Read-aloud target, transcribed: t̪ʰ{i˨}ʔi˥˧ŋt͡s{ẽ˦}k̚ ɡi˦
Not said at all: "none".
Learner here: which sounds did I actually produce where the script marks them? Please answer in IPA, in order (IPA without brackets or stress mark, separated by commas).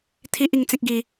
i˦, ẽ˦